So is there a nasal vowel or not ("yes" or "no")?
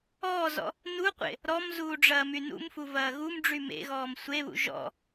no